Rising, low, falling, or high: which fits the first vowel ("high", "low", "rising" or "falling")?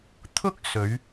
high